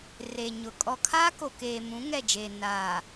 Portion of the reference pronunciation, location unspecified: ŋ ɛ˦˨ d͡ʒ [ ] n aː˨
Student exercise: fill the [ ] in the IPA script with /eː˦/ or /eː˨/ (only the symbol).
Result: eː˨